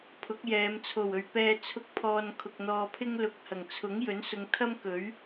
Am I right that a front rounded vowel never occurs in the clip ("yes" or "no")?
yes